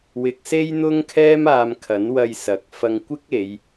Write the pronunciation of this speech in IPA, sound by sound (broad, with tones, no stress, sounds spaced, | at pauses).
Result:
w ɪ˨˥ k̚ s e˥ j n̪ ʊ˥ ŋ kʰ ɛː˥ m aː˧ m kʰ ɐ˨˥ n w ɐ˧ j s ɐ˨˥ k̚ f ɐ˧ ŋ kʷ ɪ˥ k̚ e˨˧ j